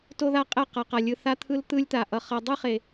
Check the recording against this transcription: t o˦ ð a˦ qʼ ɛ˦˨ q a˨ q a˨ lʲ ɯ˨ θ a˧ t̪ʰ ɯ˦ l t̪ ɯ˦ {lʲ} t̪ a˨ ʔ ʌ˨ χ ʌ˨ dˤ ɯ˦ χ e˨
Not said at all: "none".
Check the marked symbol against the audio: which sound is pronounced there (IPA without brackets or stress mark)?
lʲ